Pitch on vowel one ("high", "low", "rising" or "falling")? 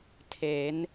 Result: rising